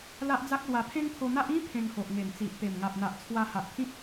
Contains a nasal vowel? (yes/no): yes